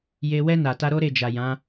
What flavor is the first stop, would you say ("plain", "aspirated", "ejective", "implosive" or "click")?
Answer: plain